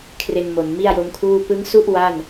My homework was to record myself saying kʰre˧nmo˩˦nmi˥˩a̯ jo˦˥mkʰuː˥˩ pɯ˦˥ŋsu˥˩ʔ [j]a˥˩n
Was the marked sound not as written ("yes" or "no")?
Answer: yes